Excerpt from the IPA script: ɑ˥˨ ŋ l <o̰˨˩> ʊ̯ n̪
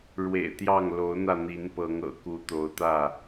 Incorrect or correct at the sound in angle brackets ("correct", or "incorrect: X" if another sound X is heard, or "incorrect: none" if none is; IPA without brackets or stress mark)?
incorrect: o˨˦